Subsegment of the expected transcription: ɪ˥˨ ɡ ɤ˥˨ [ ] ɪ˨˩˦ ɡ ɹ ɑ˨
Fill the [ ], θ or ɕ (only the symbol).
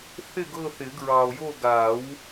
θ